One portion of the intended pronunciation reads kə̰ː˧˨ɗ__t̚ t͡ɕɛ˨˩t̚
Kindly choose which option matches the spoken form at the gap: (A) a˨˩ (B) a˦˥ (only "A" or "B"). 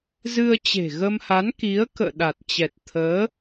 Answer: A